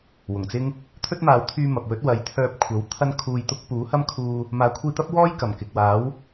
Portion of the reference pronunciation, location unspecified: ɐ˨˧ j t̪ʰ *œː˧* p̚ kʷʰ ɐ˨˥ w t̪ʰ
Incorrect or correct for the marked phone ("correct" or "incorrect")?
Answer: correct